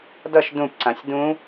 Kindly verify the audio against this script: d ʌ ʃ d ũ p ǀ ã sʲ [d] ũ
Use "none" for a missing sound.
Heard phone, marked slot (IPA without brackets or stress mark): d